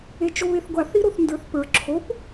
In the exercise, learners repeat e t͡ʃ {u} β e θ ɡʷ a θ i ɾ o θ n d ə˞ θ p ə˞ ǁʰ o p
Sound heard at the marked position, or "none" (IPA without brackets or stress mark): o